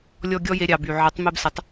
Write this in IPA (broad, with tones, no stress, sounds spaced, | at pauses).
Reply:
lʲ ɔ˧ ɡʲ ɔ˦ j e˧ ɾʲ ɑ˨ b y˨ ʕ ə˨˦ tˤ m e˧ b s ə˨˦ tˤ